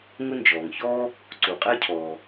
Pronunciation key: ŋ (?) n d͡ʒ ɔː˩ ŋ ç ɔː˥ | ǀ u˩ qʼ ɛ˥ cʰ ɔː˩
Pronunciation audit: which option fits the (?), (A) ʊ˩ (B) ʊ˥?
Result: B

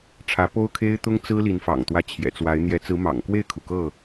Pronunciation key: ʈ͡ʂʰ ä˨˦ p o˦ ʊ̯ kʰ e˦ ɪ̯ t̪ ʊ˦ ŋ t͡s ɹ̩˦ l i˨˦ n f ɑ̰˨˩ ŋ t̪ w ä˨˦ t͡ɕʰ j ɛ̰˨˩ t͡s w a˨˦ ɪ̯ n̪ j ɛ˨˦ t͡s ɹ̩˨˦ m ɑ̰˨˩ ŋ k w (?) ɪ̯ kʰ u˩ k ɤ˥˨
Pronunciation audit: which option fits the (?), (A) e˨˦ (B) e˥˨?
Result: B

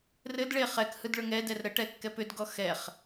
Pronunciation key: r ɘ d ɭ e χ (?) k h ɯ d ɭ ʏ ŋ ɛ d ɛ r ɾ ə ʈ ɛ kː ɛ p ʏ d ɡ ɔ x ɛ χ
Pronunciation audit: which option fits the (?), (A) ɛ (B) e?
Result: A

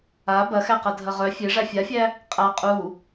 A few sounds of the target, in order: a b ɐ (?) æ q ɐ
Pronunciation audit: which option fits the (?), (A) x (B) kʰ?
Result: A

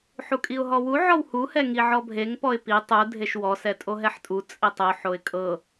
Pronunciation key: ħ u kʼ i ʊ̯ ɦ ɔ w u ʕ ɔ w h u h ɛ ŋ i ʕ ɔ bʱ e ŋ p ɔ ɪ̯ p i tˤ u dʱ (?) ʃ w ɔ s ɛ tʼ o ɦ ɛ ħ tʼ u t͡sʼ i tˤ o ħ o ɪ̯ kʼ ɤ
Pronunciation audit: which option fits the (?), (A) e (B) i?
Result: A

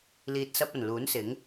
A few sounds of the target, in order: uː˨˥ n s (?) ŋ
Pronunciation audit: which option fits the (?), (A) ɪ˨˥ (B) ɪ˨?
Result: A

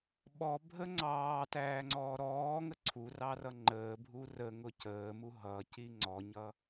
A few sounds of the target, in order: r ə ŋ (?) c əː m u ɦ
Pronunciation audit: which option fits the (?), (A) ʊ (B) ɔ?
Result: A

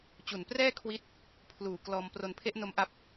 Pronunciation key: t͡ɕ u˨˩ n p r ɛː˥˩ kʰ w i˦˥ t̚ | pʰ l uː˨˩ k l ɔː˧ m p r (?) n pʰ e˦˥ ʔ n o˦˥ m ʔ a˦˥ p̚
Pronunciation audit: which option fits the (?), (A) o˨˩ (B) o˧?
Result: B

